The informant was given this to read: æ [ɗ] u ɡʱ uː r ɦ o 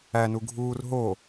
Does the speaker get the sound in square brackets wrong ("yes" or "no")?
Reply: yes